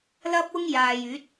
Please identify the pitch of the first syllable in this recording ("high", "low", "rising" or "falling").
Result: high